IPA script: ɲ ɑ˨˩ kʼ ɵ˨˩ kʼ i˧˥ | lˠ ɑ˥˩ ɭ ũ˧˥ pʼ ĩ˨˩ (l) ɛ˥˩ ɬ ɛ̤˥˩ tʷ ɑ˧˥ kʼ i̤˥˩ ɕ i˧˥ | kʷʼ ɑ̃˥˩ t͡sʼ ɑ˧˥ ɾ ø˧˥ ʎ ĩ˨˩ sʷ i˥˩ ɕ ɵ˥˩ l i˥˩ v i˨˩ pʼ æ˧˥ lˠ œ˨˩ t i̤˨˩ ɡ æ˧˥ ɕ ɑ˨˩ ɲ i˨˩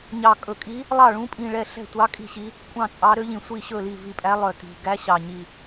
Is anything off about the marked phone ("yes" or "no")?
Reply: yes